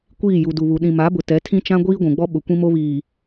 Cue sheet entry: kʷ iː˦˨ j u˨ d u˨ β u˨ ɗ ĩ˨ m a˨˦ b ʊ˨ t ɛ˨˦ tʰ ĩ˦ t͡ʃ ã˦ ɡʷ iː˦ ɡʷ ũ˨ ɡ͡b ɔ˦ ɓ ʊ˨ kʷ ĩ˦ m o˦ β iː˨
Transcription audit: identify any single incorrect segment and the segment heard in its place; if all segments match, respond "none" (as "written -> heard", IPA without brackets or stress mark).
none